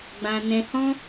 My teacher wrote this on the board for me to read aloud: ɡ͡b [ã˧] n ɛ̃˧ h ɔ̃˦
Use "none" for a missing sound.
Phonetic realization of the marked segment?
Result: ã˧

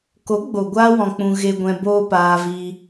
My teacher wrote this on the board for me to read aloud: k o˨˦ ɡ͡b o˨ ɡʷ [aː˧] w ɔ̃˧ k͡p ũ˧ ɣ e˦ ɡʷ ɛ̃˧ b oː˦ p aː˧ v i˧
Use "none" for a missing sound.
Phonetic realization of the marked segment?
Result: aː˧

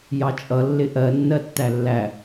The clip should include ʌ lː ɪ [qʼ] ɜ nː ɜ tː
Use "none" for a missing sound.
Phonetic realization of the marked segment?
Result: ʔ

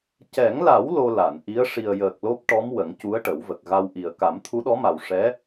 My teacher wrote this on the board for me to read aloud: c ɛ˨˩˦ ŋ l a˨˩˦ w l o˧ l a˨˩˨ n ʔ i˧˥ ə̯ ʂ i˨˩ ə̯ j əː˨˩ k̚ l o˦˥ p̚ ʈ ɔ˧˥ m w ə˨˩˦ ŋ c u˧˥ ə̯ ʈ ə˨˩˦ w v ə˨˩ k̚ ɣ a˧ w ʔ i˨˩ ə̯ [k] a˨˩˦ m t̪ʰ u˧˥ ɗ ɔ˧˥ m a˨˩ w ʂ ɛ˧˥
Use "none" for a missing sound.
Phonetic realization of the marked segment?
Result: k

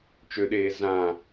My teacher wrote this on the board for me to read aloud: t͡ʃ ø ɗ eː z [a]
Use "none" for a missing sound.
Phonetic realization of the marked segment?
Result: ã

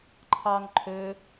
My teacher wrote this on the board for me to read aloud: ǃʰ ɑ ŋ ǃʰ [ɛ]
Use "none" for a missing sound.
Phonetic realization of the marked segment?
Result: ø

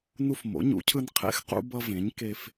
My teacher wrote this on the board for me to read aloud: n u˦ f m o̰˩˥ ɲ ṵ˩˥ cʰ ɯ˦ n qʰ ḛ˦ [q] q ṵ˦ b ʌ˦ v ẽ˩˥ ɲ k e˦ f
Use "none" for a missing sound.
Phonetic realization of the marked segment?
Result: x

